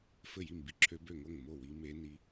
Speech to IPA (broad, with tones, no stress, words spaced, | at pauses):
fɘ˥˩ji˥˩mbi˧˥ ǁʰø˧˥bø˥˩ŋo˥˩ŋ mo˥˩wi˧˥ me˧˥ni˧˥